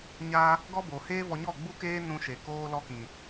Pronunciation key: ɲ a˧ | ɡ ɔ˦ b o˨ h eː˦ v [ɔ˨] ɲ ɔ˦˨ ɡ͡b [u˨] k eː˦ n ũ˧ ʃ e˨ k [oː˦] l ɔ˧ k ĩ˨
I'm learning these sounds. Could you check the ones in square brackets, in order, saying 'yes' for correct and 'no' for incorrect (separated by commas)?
no, no, no